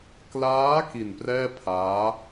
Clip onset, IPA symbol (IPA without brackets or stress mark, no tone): k